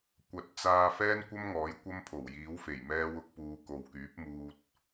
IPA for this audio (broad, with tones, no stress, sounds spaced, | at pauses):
kʷ ɐ˨˥ t̚ t͡s aː˧ f ɛː˥ n kʷ ɐ˥ m ŋ ɔː˨˥ j kʷ ɐ˥ m pʰ o˨˩ w j iː˨˥ w f e˨˩ j m ɛː˥ w ʊ˥ k̚ p uː˧ k o˨ w k yː˨˥ p̚ m uː˧ t̚